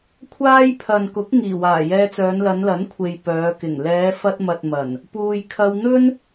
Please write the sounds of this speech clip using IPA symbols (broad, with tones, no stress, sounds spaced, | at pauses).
kʷʰ aː˥ j pʰ ɐ˨ n k ʊ˨˥ k̚ ŋ iː˨˩ w aː˨˩ j ɛː˧ t͡s œː˨˧ n l ɐ˨˧ n l ɐ˨˥ n kʷʰ e˨ j p œː˨˧ k ɪ˨˩ ŋ l ɛː˨˧ f ɐ˧ t̚ m ɐ˨ t̚ m ɐ˨˩ n | p uː˨ j kʰ ɐ˧ w n̪ ɵ˥ n